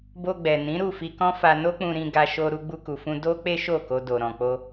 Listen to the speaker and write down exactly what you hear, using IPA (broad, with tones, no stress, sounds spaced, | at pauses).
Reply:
b o˧ ɡ͡b ɛ˨ n ĩ˨˦ ɾ u˦˨ f i˧ k ɔ̃˦ f a˧ n o˦ k͡p ũ˧ ɾ ĩ˧ ɡ a˧ ʃ o˧ ɾ u˧ ɡ͡b u˧ k u˨ f ũ˧ d o˦ k͡p e˦ ʃ o˦˨ k o˧ d o˨ ɾ ɔ̃˨ k͡p o˧